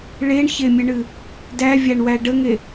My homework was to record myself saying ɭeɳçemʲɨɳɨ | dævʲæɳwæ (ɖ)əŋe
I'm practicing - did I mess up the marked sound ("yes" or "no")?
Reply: no